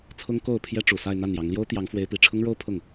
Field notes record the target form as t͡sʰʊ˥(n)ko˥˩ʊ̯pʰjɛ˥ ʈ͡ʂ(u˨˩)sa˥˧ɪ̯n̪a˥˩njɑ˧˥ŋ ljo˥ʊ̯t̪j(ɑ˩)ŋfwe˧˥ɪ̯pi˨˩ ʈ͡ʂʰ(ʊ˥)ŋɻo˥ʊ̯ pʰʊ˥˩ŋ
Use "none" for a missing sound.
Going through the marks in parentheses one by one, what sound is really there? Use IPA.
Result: ŋ, u˨˩, ɑ˧˥, ʊ˥

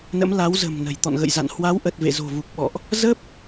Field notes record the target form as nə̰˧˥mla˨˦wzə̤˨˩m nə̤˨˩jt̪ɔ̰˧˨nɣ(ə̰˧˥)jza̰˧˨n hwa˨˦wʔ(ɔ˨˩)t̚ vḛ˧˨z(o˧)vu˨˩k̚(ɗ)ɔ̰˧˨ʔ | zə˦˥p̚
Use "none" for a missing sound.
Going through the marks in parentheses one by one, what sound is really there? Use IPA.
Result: ə̰˧˨, ə˨˩, o̤˨˩, ɓ

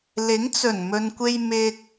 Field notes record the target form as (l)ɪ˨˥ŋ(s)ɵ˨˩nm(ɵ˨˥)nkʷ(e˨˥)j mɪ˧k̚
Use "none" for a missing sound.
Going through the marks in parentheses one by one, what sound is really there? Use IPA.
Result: l, t͡s, ɵ˨, e˧

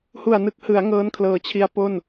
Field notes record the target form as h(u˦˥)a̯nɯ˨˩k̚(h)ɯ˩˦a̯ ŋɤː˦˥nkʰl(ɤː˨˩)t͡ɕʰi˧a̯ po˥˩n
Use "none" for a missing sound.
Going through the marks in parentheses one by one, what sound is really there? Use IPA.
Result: u˨˩, h, ɤː˨˩

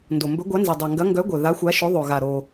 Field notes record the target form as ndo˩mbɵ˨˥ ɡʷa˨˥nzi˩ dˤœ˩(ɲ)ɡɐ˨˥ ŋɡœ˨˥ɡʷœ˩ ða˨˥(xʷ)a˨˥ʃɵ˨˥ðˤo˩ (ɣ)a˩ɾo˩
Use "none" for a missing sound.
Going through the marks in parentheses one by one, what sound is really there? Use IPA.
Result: ŋ, xʷ, ɣ

